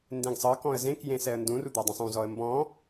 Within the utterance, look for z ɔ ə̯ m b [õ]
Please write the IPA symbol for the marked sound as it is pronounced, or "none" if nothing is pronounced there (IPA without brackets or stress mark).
ɔ̃